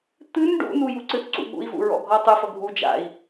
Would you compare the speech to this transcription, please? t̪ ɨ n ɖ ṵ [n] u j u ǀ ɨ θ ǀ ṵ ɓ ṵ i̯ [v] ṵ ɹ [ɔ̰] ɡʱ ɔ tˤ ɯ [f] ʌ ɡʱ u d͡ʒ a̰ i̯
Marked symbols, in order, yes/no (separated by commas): yes, yes, yes, yes